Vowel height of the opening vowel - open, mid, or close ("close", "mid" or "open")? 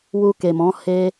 close